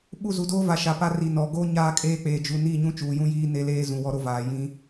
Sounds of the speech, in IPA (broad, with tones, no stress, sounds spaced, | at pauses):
ɓ u˦˨ z u˨ d oː˦ v a˨ ʃ a˨ p a˦ r i˨ n ɔ˨ ɡ o˦ ɲ aː˦ kʼ eː˦ k͡p eː˨ d͡ʒ u˨ n i˦˨ ɲ ũ˦ t͡ʃ uː˨ j ũ˦ j iː˦ n e˦ l eː˦ z ũ˨ w ɔ˦ ɾ o˦ v aː˨ j ĩ˦